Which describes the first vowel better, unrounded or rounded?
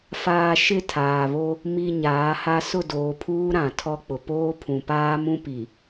unrounded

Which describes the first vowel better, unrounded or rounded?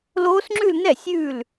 rounded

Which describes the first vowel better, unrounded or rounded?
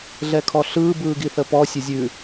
unrounded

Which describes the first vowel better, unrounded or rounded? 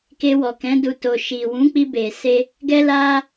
unrounded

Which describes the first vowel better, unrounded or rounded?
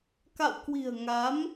unrounded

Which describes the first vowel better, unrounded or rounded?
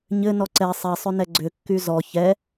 unrounded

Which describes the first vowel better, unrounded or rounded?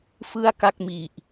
unrounded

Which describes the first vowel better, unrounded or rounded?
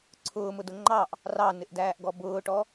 rounded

